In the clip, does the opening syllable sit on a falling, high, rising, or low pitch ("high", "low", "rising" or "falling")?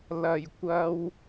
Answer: low